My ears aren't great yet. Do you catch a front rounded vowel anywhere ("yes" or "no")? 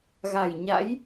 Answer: no